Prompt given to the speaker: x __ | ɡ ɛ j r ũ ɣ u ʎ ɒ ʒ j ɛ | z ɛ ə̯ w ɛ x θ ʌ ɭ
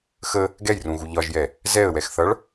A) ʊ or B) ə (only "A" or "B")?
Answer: B